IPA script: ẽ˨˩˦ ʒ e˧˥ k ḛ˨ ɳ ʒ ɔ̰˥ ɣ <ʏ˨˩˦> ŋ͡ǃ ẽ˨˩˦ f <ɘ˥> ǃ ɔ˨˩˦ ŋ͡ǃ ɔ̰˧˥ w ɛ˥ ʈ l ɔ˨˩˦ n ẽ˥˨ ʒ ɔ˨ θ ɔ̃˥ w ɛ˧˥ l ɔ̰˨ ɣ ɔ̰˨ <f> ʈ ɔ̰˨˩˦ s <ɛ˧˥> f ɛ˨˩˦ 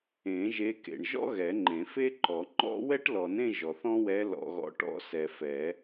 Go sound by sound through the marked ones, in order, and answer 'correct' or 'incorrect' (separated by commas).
incorrect, incorrect, incorrect, incorrect